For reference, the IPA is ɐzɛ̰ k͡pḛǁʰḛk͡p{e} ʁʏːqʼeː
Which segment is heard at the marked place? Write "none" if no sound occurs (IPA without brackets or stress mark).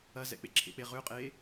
e